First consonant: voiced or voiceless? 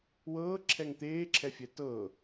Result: voiced